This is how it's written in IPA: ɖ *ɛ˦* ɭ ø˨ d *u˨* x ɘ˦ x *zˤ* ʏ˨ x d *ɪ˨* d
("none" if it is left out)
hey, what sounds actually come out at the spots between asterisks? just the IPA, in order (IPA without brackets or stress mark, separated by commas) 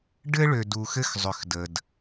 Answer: ɘ˦, u˨, zˤ, ə˨